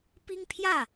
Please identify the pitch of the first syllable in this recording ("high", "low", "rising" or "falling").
high